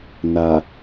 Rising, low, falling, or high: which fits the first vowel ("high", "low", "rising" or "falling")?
low